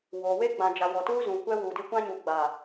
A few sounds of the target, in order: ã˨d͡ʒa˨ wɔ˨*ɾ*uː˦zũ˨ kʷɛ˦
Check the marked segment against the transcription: incorrect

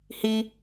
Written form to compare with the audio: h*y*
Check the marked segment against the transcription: incorrect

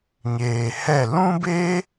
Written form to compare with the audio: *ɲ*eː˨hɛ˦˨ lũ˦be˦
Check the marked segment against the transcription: correct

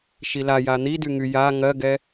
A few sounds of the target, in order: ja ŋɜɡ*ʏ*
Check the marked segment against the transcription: incorrect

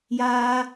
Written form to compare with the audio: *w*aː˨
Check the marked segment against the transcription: incorrect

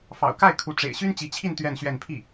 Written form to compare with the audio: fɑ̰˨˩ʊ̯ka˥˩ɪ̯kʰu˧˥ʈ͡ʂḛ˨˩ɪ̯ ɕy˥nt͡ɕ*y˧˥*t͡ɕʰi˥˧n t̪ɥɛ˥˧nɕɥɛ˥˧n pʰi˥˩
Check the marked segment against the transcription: incorrect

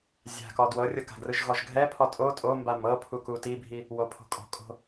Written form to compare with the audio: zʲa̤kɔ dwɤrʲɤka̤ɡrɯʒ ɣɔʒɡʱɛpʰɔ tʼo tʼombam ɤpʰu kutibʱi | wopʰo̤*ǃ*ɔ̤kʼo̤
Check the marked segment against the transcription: incorrect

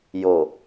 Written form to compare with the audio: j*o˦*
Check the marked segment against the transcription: incorrect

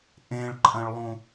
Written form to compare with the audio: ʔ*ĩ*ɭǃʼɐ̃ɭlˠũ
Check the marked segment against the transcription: incorrect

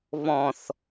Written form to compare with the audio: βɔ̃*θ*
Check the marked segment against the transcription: correct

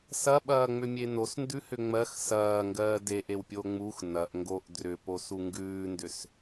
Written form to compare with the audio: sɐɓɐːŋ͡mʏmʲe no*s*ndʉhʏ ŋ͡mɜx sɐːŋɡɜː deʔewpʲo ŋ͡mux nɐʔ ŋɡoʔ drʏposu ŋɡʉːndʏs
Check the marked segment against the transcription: correct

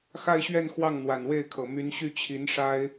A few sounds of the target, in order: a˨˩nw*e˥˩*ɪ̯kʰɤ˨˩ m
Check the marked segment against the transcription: correct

